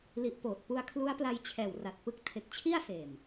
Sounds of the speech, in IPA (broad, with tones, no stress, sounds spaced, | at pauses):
l i˨˩ ʔ p oː˨˩ t̚ p u˧ a̯ kʰ l u˦˥ a̯ p l a˧ j t͡ɕʰ ɛː˨˩ w r a˨˩ t̚ p ɯ˦˥ k̚ tʰ e˨˩ k̚ t͡ɕʰ i˥˩ a̯ s eː˨˩ m